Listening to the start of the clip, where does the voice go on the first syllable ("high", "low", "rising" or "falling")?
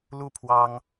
falling